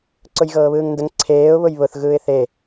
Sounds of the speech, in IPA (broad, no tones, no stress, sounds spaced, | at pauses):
ǀ ʊ j ɣ ɤː β ɯː ŋ n d ə ŋ ǀʰ eː ʊ̯ β ʊ j β ʊ θ ɣ ɯː ɪ̯ θ e